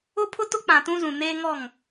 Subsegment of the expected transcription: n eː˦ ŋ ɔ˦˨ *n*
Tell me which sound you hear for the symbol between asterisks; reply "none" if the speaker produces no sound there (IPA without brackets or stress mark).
ŋ